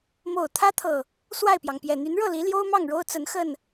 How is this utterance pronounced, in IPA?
m o˨˩ ʊ̯ t̪ʰ ä˦ t̪ʰ ɤ˨˩ | s w a˥˨ ɪ̯ p j ɑ˩ ŋ p j ɛ˨˩ n̪ y˨˦ n ɻ ɤ˥˨ l i˨˦ l j o˦ ʊ̯ m ɑ˥˨ ŋ ɻ o˦ ʊ̯ t͡s ə˨˦ n x ə˥˨ n

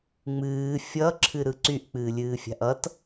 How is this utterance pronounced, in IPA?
ŋ͡m ɨː fʲ ʌ ǁʰ ɨ ɾ ɯ ǀ y ʔ k͡p ɨː lʲ ɨː fʲ a̤ ʔ ʌ t

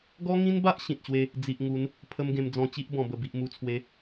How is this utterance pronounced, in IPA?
ɡ ɔ˦ ŋ ĩ˦ n b a˦ ʔ ɕ ĩ˨ t̚ ɕ w e˦ | d͡z i˨ ʔ ŋ u˨˦ n | pʰ ə˦ m ɡ ẽ˧ m d͡z ɔ̃˧ t͡ɕ i˦ ʔ b ɔ̃˨˩ b ə˨˩ b i˨ ʔ m u˨˩ t͡sʰ w e˨˦

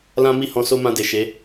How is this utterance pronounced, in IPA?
l ã˦ m i˦˨ h ɔ̃˧ s o˦ m ã˧ d e˨ ʃ e˨˦

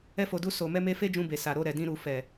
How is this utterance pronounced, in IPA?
ɛ˧ f o˨ d u˧ s o˨ m ɛ˧ m e˧ f e˦ d͡ʒ ũ˧ b e˨ s a˨ ɾ o˧ ɾ ɛ˨ d ĩ˧ ɾ u˨ f ɛ˨

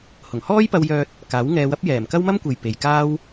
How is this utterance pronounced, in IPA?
h ʊ˨˩ ŋ h ɔː˥ j p ɐ˧ w j œː˧ t̚ | k aː˨˥ w ŋ ɛː˧ w ɐ˥ p̚ j ɛː˨˩ m k ɐ˥ w m ɐ˥ m kʷ e˨ j p e˨ j k aː˥ w

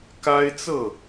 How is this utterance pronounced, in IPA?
k a˦ ɪ̯ t͡s ɤ˥˨

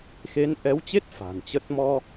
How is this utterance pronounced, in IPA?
x e˨˦ n ʔ ɛ˨˦ w t͡ɕ e˦˥ t̚ f a̤˨˩ n t͡ɕ ə˦˥ t̚ m ɔ˧

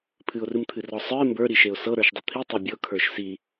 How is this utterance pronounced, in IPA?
pʰ ɨ ʊ̯ r ɨ m t̪ʰ ɨ r ɔ sˤ ə˞ ɪ̯ m b ə˞ ɾ i ʃ e ʊ̯ s ɤ ɾ ə˞ ʃ dˤ ɨ t̪ʰ i tˤ ɤ bʲ ɤ kʰ ə˞ ʃ s i

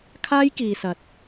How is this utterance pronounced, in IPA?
kʰ aː˥ j k iː˨ s ɐ˨ t̚

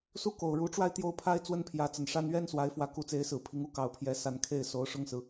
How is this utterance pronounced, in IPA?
s u˥˩ k o˨˩ ʊ̯ ɻ u˧˥ ʈ͡ʂ w a˥˧ ɪ̯ t̪ j o˥˩ ʊ̯ pʰ a˥ ɪ̯ t͡s w ə˥ n pʰ j ä˧˥ t͡s ə˨˩ n ʂ a˥ n ɥ ɛ˥ n s w a˧˥ ɪ̯ f w ä˧˥ k u˧˥ t͡s e˧˥ ɪ̯ s ɹ̩˨˩ pʰ i˧˥ ŋ u˥ k ɑ˨˩ ʊ̯ pʰ j ɛ˧˥ s a˧˥ n kʰ e˥˩ ɪ̯ s o˧˥ ʊ̯ ʂ ʊ˥˩ ŋ s ɹ̩˩

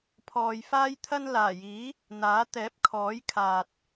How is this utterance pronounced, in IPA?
pʰ ɔː˨ j f aː˥ j t̪ʰ ɐ˥ n l aː˨˩ j iː˨˥ | n̪ aː˨˥ t̪ ɛː˨˥ p̚ kʰ ɔː˨˥ j kʰ aː˨ t̚

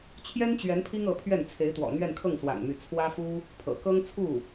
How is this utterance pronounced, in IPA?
t͡ɕʰ j ɛ˥ n t͡ɕ ɥ ɛ˧˥ n pʰ i˥ ŋ ɤ˧˥ pʰ ɥ ɛ˥˩ n t͡sʰ e˧˥ ɪ̯ t̪ w ɔ̰˨˩ n̪ ɥ ɛ˥˧ n kʰ ɤ˥˩ ŋ s w a̰˨˩ n m y˧˥ t͡sʰ w ä˥ f u˥ | pʰ ɤ̰˨˩ k ɤ˥ ŋ t͡sʰ u˥˩

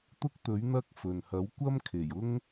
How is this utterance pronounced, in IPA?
t̪ ʊ˥ k̚ t̪ ɵ˨˥ ɥ n̪ ɐ˥ k̚ f ɵ˨ n h ɐ˨˥ w kʷ ɐ˥ m kʰ e˨˩ j ʊ˥ ŋ

